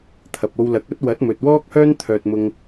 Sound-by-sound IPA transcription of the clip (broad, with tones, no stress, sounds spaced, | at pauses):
t̪ʰ ɐ˨ p̚ o˧ w l ɐ˨˥ k̚ ɐ˥ t̚ w ɐ˨˥ t̚ m ɵ˨ t̚ w ɔː˥ k̚ h œː˥ n t̪ʰ œː˧ t̚ m ʊ˧ ŋ